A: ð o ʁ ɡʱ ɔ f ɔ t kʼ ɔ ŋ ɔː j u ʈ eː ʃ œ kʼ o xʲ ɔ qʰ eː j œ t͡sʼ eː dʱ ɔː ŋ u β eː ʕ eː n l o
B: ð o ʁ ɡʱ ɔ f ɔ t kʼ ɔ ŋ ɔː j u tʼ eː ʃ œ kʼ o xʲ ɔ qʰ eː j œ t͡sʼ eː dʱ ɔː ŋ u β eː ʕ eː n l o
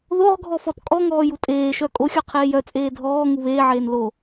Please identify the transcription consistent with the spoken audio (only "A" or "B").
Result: B